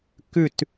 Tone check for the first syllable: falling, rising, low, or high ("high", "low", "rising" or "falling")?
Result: falling